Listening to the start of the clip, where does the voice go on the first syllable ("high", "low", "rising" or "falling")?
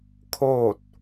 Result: falling